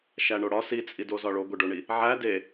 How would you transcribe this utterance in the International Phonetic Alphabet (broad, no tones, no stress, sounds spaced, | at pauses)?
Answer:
ʃ æ ɳ o ɽ ɒ s i t͡sʼ i d o z ɒ ɭ o ɡʷ e ɖ o ɳ i | ʕ æ d e